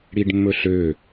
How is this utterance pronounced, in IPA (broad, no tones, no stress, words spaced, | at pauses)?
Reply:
ɽiɖmːɵɬø